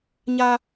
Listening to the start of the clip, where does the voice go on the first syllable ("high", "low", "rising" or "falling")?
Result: high